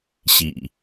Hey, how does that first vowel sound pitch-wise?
low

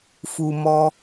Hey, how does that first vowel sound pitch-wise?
low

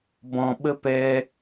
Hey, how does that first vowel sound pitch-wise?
low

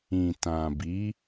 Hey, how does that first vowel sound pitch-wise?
low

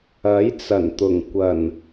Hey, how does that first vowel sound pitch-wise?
rising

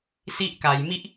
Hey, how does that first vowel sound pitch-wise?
high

